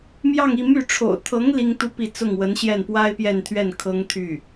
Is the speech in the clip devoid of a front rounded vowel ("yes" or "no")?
no